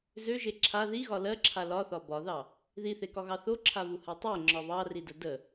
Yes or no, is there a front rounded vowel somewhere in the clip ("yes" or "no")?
yes